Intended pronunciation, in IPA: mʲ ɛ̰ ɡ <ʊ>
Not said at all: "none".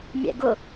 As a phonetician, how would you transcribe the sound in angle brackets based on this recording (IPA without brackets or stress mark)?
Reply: ʊ